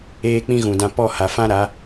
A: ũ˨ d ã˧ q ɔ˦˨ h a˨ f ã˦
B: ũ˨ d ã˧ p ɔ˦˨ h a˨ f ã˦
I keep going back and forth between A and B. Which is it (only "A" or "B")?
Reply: B